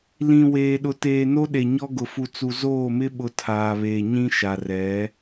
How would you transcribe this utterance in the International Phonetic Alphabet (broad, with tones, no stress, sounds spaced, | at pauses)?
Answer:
l ĩ˨ w eː˨ ɗ ʊ˨ t eː˨ n o˦ ɗ e˨ ɲ ɔ˦ ɡ ʊ˨ f u˨ t͡s u˨ z oː˦˨ m ɪ˦ ɓ ʊ˨˦ tʰ aː˨ β eː˨ ɲ ĩ˦ ʃ a˨ r ɛ˨˦